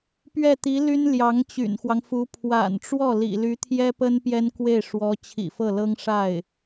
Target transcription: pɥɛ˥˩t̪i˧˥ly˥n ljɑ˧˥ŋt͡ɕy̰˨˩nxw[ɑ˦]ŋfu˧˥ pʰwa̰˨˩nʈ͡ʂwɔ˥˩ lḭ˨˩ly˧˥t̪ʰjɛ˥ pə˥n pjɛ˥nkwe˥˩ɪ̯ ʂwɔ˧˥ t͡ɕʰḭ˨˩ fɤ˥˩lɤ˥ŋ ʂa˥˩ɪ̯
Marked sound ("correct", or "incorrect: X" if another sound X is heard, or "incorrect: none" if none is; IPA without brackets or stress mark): correct